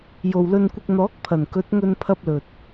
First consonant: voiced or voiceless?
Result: voiced